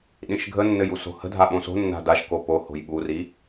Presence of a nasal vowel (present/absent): present